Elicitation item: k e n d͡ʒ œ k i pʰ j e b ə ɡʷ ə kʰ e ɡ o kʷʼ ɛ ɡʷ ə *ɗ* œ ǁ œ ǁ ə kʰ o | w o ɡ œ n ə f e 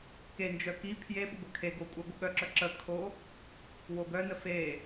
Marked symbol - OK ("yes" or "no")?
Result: no